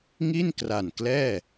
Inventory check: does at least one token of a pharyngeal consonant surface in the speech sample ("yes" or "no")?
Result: no